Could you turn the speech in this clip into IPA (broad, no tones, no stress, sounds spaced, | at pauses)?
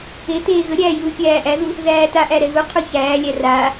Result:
e t eː ɣ ə ɾʲ æː j uː fʲ æː ʔ æ ð u | ð æː t a ʔ æ ɾ ɛ ɣ u qʰ u ç æː lʲ æ r aː